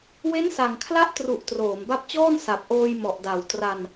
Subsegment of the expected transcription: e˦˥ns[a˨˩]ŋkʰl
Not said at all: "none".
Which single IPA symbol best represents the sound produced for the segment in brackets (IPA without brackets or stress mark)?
a˨˩